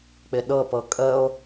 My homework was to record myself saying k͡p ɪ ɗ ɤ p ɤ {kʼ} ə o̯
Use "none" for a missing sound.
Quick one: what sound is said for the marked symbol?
kʼ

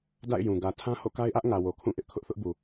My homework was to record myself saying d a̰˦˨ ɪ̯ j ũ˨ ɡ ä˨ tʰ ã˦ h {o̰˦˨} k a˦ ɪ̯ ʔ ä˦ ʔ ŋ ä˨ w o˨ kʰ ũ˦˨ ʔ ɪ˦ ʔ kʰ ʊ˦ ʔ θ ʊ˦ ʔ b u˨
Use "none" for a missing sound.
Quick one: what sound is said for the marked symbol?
o̰˦˨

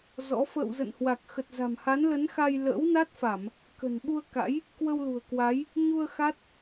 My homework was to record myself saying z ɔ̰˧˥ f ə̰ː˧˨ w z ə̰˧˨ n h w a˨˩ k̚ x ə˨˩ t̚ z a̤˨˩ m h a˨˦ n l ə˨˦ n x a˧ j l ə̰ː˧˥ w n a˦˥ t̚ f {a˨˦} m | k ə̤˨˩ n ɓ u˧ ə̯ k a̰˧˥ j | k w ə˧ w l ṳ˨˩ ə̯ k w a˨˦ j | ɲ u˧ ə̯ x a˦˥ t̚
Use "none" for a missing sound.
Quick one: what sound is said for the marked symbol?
a˧˩˨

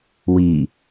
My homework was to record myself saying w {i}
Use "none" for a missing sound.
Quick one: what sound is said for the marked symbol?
i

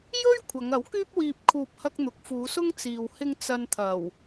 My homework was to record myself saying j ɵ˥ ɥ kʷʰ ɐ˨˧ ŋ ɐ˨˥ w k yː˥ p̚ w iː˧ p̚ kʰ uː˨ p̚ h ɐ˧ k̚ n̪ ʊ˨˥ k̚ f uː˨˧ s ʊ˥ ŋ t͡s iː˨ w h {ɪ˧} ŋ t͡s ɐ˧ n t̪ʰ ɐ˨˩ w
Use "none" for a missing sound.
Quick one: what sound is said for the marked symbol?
ɪ˧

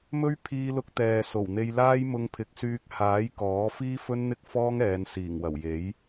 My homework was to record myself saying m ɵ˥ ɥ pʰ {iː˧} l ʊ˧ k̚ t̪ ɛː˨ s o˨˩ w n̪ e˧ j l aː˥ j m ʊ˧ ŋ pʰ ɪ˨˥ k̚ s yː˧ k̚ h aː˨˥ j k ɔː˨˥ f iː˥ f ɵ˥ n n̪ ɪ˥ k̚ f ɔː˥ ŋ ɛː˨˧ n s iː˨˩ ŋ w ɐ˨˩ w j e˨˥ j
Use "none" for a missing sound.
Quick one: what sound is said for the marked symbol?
iː˧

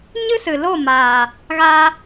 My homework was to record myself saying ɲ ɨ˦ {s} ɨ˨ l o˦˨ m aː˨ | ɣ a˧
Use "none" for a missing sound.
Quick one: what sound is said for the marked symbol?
s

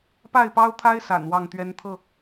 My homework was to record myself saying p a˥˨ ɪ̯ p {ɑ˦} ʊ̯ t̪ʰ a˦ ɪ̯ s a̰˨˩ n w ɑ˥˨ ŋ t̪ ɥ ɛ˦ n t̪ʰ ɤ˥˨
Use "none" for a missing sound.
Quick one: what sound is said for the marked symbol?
ɑ˦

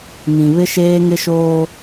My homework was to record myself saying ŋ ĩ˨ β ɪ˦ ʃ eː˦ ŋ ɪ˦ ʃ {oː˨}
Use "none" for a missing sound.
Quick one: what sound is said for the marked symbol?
oː˦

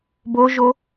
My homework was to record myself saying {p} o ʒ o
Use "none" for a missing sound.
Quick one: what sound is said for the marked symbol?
b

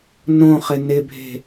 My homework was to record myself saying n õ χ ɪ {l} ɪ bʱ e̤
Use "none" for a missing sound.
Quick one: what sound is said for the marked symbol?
n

